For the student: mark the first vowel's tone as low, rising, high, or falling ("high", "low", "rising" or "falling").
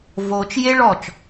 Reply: low